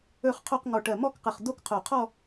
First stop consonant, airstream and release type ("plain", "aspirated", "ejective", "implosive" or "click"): aspirated